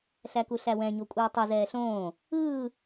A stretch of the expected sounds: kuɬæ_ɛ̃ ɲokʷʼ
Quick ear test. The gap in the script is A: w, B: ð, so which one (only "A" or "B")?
A